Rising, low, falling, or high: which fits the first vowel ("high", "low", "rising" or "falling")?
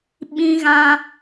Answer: high